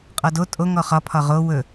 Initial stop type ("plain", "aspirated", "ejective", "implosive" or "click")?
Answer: ejective